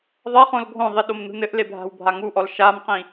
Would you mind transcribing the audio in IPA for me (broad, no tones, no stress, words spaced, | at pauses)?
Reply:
ðˤɐχõl ɡʱõðˤi ɗomnṳnɘʔle bʱa̤wbʱaŋuʔɔl ʃamqĩ